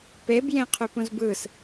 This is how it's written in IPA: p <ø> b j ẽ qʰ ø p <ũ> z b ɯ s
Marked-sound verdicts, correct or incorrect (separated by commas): incorrect, correct